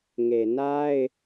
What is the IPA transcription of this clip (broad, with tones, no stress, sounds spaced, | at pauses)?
ŋ e˨ n a˦ ɪ̯